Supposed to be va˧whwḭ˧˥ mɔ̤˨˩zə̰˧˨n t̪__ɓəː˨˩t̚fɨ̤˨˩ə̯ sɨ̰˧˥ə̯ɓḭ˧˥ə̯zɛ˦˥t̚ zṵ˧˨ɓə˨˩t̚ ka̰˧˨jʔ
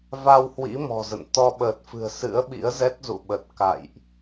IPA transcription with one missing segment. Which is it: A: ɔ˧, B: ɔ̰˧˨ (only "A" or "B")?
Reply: A